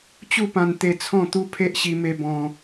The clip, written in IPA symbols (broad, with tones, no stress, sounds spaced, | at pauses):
t͡ɕ u˥˧ p ã˧ n t̪ e˧ t͡sʰ ɔ̃˥˧ t̪ u˦ pʰ e˦ ʔ ɕ i˧ m e˧ b ɔ̃˧